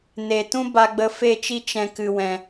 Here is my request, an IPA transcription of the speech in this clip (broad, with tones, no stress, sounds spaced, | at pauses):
n e˨ t ũ˦ b a˧ ɡ͡b ə˧ f e˦˨ t͡ʃ i˦ t͡ʃ ɛ̃˧ k ɨ˨ w ɛ̃˨